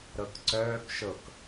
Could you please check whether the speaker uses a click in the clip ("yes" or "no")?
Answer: yes